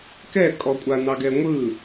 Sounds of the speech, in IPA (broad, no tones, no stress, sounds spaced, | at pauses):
k ɛ kʼ ɔ kʷʼ a n ɑ ɡ ɛ ŋʷ ɯ